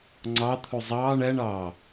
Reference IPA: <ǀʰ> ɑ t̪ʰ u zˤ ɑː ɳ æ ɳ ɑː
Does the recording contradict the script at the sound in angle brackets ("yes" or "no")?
yes